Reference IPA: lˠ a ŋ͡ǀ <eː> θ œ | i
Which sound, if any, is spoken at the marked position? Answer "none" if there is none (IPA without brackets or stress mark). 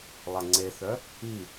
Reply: e